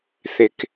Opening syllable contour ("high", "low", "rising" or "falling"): low